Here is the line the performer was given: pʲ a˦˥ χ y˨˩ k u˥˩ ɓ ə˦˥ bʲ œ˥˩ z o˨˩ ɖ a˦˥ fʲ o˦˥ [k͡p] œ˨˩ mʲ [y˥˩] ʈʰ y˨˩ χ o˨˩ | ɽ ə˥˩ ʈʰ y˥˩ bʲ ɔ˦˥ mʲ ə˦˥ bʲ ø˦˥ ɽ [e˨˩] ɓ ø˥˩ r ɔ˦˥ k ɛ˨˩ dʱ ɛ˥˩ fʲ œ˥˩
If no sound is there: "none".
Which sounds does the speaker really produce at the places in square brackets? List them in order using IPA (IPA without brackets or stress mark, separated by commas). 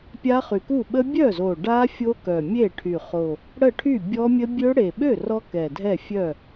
k, e˥˩, e˨˩